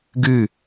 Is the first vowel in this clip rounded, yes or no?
no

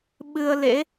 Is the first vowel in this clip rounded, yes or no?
no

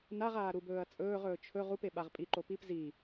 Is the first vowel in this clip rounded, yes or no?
no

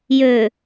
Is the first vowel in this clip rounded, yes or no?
yes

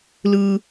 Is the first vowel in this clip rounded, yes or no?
no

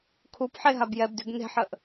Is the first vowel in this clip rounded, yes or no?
yes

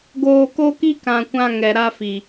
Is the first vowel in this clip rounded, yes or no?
yes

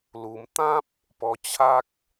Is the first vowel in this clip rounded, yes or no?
yes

